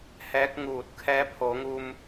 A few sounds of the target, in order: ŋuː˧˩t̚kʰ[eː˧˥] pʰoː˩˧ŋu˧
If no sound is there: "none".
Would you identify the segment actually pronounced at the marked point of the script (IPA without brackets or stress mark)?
ɛː˧˥